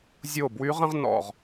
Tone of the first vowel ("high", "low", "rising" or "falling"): falling